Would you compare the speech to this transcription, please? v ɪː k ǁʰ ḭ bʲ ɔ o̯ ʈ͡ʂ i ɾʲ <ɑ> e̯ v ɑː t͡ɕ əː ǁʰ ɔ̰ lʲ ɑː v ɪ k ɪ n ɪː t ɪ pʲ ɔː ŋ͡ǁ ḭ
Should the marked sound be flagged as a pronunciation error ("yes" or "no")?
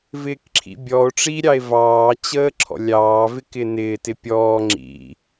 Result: no